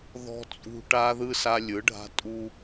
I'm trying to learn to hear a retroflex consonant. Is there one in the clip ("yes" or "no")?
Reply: yes